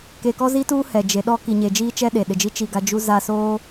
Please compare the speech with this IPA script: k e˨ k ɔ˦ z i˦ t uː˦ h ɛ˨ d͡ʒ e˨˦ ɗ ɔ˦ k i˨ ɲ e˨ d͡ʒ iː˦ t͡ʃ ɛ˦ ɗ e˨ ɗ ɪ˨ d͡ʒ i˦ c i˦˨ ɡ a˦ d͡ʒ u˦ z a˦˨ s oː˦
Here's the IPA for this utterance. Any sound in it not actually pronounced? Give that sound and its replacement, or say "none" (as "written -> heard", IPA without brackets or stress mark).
c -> t͡ʃ